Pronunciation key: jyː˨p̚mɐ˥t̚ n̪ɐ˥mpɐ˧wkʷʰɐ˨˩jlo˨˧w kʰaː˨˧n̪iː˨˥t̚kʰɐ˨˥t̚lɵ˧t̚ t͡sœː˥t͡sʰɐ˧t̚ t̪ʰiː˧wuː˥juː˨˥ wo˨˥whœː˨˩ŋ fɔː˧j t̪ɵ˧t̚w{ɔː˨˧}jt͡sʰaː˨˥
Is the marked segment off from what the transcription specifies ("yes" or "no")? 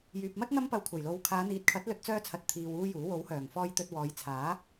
no